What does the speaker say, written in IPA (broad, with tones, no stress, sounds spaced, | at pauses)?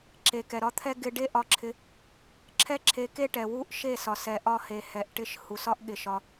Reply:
ǁ e˨ k ɛ˨ ɾ ɒ˧ t̪ʰ ɛ˦ ɡ ɪ˧ ɖ e˦ ʔ ɒ˧ ǁʰ ɪ˧ | ǁʰ ɛ˦ ǁʰ e˨˦ k e˦ ʈ ɛ˨ w u˦ ʔ ʃ e˦˨ s ɒ˨ s ɛ˨ ʔ ɒ˧ h e˨ h ɛ˨ ʔ ʈ ɪ˧ ʃ h u˨ s ɒ˦ ʔ ɠ ɪ˨ ʃ ɒ˧